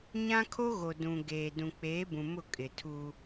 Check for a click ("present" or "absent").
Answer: absent